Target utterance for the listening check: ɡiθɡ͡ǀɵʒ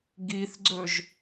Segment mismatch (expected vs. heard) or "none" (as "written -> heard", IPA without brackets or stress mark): none